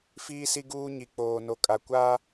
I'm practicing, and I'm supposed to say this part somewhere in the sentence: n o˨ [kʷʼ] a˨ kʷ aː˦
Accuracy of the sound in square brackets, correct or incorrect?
incorrect